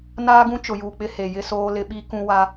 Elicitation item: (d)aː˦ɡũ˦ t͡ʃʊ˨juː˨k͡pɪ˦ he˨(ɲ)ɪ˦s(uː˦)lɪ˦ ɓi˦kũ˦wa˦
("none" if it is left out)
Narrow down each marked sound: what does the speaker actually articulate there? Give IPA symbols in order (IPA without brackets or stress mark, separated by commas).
n, j, oː˦